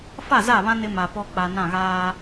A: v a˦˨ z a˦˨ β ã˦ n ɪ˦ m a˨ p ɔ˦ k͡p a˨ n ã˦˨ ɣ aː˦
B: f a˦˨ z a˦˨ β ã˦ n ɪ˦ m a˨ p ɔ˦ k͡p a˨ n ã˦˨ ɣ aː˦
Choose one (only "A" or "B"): B